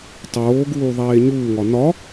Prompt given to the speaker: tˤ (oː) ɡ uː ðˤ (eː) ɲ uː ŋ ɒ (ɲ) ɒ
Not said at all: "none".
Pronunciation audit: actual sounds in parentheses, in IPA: oː, eː, n

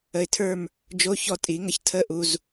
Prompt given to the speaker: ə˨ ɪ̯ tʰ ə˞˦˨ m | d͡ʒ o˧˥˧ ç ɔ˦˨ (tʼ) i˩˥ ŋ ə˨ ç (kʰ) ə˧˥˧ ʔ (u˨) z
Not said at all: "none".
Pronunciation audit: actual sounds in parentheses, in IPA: tʼ, tʰ, u˨

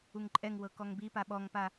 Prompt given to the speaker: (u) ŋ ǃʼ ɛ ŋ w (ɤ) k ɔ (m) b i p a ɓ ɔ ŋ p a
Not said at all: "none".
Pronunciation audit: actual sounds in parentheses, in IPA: u, ɤ, ŋ

